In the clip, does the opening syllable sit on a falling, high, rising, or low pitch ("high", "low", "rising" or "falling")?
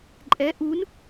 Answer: rising